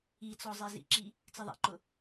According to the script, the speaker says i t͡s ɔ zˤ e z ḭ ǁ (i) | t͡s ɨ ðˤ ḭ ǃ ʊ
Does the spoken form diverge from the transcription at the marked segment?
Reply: no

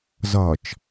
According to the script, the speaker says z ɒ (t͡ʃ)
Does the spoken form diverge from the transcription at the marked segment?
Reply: no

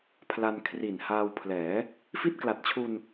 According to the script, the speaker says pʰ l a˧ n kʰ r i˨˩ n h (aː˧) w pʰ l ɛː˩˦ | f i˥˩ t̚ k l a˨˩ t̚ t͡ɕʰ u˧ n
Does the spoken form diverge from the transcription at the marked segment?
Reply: no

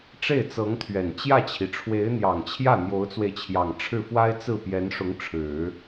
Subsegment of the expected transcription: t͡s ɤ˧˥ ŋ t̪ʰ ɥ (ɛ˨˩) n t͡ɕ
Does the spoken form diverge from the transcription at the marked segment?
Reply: no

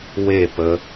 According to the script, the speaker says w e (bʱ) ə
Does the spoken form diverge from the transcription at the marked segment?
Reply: yes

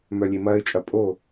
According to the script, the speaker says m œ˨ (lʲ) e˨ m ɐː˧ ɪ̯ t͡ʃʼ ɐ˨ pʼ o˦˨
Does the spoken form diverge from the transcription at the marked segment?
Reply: no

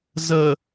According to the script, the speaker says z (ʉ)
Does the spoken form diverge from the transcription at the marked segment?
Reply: yes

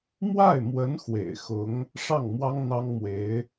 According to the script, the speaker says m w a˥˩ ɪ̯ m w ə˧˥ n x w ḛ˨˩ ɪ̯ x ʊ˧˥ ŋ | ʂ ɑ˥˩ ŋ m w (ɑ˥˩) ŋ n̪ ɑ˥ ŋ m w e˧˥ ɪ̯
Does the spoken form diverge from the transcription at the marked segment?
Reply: yes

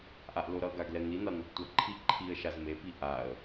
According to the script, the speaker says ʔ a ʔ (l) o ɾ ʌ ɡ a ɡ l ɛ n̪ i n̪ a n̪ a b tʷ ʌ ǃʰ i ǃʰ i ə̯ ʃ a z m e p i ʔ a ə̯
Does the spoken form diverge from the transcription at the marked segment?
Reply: no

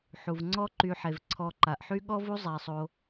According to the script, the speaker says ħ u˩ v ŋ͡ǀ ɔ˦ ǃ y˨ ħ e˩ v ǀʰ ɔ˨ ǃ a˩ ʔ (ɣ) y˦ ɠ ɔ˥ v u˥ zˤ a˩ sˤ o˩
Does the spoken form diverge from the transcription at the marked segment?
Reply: yes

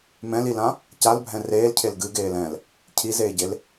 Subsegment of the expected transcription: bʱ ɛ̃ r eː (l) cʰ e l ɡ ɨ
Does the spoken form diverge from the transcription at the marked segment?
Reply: no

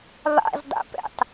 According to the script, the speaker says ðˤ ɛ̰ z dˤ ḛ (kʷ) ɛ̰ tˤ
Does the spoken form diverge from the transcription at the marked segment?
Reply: yes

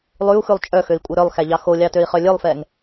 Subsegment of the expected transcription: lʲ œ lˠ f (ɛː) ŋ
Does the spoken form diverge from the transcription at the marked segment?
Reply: no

